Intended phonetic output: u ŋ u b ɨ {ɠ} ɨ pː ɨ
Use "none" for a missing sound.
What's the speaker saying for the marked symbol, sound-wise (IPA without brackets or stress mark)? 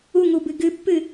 ɡ